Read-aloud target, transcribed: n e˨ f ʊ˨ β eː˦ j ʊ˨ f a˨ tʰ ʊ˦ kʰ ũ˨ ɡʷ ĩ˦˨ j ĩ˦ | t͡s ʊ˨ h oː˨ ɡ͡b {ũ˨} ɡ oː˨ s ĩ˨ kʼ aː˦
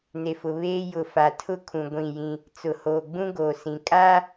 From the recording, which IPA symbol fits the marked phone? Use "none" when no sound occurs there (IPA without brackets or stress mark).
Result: ũ˦